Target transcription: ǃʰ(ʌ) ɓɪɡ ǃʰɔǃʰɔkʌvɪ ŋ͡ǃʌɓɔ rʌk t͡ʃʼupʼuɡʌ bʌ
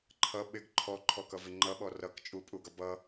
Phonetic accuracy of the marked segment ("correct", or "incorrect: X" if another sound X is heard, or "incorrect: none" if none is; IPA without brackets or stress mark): correct